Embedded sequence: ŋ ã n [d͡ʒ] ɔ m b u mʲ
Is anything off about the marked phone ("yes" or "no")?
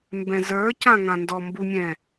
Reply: yes